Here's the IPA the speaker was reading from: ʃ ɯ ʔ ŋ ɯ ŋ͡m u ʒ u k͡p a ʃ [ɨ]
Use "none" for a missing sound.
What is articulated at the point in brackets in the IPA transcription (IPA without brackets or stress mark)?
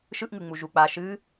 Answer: ɨ